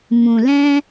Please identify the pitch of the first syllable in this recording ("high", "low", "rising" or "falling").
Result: low